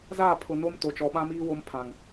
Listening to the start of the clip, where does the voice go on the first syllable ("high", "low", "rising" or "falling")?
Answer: falling